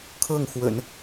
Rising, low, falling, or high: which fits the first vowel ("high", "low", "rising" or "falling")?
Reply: falling